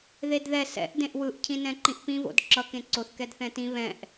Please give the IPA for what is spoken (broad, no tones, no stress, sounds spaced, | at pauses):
ð e d ð ɛ s ɛ̰ ʔ d ẽ ʔ w ɯ ʔ cʰ ĩ n ɛ̃ ǃ ĩ ʔ p ĩ v o̰ d ǁ ʌ k ẽ ǀ o θ k ɛ d θ ɛ̃ t ĩ β ɛ̃ ʔ